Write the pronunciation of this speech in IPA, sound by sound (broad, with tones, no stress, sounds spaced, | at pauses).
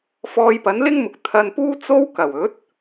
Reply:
f ɔː˧ j p ɐ˨˥ n l ɪ˥ ŋ m ʊ˨ k̚ t̪ʰ ɐ˧ n p uː˥ t͡s o˥ w k ɐ˨˩ w ɵ˨˥ t̚